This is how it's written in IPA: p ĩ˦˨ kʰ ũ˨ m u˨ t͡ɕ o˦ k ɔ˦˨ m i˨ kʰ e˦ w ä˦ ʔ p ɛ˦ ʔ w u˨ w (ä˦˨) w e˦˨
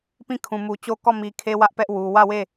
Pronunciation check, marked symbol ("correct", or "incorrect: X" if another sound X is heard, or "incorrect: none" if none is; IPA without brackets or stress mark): correct